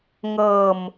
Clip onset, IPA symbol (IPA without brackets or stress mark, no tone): ŋ